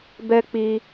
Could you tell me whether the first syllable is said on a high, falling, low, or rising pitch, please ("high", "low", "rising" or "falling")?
high